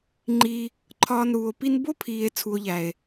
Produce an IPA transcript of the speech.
ŋ͡ǃi˧ | ǃʰɒː˧nɾuː˨o̯ pi˧nbo˦pʰiː˨e̯ t͡sʰu˨o̯ʎæ˨e̯

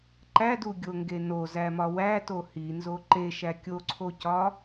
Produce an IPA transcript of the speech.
ǃæduɡʲoŋɡe nozæmɒ wæto hinzo ǃeʃæ kʲoǀʰocɒ

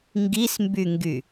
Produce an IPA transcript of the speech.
ŋɡismbyŋɡy

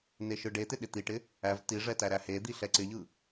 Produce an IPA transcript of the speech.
neʃɯɖet̪ɪ ɗɪt̪iʈɪ | æv tiʐɛ tæɾæhed̪i ɬɛǀɪʎɯ

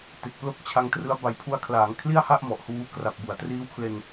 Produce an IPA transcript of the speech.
te˨˩k̚plo˥˩k̚t͡ɕʰa˧ŋtrɯ˦˥a̯ ba˨˩jpʰu˧a̯kʰlaː˩˦ŋ kʰli˥˩a̯ha˥˩ʔ mɔ˨˩ʔhuː˦˥ kra˨˩p̚bu˩˦a̯triː˦˥w kʰle˧n

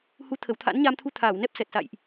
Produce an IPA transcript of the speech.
hu˨˦t̪ʰə˧˩w t̪ʰa̰˧˥nɲa˧mt̪ʰu˧ t̪ʰaː˧˩wnɛ˦˥p̚sɛ˨˩t̚sa̰˧˨jʔ

